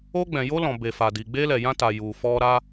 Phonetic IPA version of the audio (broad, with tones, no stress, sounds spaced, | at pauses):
o˧ ɡ͡b ɛ̃˨ j o˧ l ɔ̃˨ b e˨ f a˨ d i˨ ɡ͡b e˧ l ɛ˨ j ã˧ t a˨ j u˨ f ɔ˧ ɾ a˦